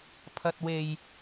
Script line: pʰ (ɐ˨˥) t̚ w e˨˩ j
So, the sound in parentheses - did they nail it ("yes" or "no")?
no